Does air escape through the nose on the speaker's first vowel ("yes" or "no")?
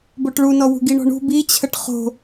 no